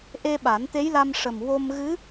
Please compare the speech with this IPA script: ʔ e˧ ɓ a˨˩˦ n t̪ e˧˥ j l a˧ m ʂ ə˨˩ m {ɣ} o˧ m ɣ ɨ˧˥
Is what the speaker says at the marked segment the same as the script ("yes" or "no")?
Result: no